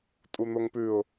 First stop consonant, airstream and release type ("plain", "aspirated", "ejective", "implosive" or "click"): ejective